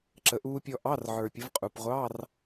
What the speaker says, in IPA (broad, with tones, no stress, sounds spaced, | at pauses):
ǁ ə˨˦ ʔ uː˦˥ pʲ ɔ˦˥ ʔ ɑ˧˥˧ r ʕ ə˞˨ pʲ ə˨˦ v qʼ u˨ p ʁʷ ɑ˧˥˧ r